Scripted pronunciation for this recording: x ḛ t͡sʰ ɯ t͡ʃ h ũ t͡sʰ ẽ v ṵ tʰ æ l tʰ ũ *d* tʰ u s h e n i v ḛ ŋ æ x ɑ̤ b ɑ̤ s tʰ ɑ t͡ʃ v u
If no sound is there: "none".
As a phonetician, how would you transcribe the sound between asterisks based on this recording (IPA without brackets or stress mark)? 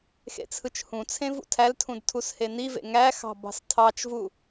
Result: d